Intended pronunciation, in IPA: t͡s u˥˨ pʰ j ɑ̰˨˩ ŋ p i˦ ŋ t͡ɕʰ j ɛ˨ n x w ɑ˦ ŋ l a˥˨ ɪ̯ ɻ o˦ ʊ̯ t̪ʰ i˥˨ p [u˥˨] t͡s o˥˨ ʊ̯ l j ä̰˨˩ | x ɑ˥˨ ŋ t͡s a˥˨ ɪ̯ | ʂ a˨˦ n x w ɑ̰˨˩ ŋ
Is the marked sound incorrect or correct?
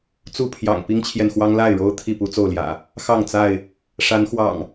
incorrect